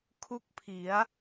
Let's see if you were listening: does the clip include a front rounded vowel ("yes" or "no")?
no